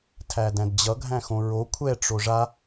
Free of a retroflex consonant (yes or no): no